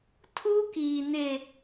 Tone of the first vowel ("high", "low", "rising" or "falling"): high